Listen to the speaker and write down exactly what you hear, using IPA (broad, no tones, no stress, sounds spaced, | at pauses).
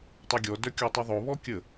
tˤ œ ɡʲ ɔ d œ kʲ ɔ tˤ y ðˤ o β ɔ kʲ ə